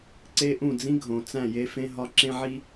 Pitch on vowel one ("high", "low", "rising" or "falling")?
high